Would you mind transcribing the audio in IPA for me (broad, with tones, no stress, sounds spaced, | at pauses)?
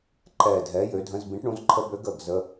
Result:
ǃ ɛ˧˩ dʱ ɛ˨˥ j ø˨˥ dʱ ə̃˧˥˧ z b ĩ˨˥ ʈ ɳ ũ˨˥ z ǃʰ ə˧˥˧ b ø˨˥ ɡ ə˧˩ ɡ z ə˧˥˧